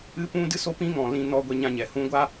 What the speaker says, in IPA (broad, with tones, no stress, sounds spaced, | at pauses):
ɨ˦ p ũ˦ d ɨ˦ s o˦ p ĩ˦ ŋ ɔ̃˨ l ĩ˧ n ɔ˧ ɡʷ ɛ˧ ɲ ã˧ ɲ ɛ˨ h ũ˧ ɡʷ a˦